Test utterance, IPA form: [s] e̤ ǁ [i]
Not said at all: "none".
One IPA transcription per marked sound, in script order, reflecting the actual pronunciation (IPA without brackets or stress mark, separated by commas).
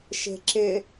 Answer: ʃ, ɪ